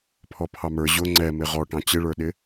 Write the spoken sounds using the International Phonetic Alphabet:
pʰɔpʰɑmə˞ ʑʊ ŋ͡ǀɛmɪ ʁɔʈɑ̃ t͡ɕɪɭə˞ɗɪ

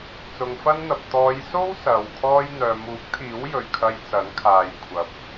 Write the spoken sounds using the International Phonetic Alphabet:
t͡sʊ˨ŋfɐ˥nn̪ɐ˨p̚ t̪ɔː˨˧jso˥w sɐ˨w kʰɔː˧jn̪œː˨muː˨˥k̚t̪ʰiː˨˥w jɵ˨ɥkʰɐ˧j t͡sɐ˨˥nkʰaː˨j kʷʰɐ˨p̚

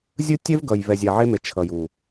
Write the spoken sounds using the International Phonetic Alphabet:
zʲɯ˦tʲɛ˦vɡʌ˨j vɛ˨zʲa˨ʕe˦me˨ t͡ʃʰʌ˨ju˨

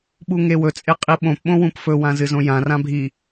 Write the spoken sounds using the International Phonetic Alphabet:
ɓuŋewɵ t͡sʼeqʼiɓõp ɓõwũpfɵ wãzɨzõjã rãbʱi

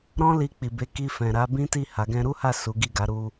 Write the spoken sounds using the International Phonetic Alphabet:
ɾɔ̃˦li˧k͡pi˨be˨˦ ki˧fɛ̃˨ ɾa˨˦ bĩ˦ti˦˨ ha˨˦ɡɛ̃˦ ɾu˦ha˦˨ su˨˦ɡi˦˨ɡa˨˦ ɾu˧

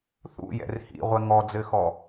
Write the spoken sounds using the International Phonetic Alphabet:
θṵjɛ̰r hḭʁʷɛ ŋɔd͡zɘxɔ

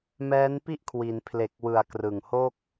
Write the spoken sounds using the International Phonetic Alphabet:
mɛː˦˥npi˥˩ʔ kʰwi˩˦npʰle˨˩k̚wɯ˩˦a̯ krɯ˨˩ŋho˥˩k̚

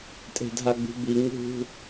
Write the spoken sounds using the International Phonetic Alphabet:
tʼe̤dʱaɡ͡bṳbi ŋṳ

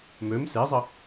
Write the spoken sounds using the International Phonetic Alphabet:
møm sezˤə

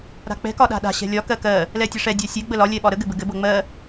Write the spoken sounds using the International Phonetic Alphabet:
ɾa̤k͡pɛ̤ kɒɗa̤ɗa̤ ɕɛ̤lʲɒ kɜkɜ | lɛtʲɘʂɛ dʲasʲɛ ɡ͡bəlɒ lʲɛɓɒɾə ɡɘbɘɡɘ bɤŋ͡mɜ

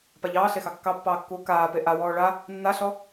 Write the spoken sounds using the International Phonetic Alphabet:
paʎɑːɬexɑ kːɑpːɑːkːuː kaː peʔa wɔːɭa | nːaɬɔ

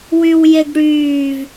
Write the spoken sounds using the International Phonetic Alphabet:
wywjeɡɽyːv

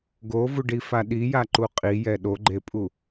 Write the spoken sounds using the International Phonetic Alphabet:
ɡovuɖifa ɗijaǃu qʼijɛ ɗoɡ͡ǃepʼu

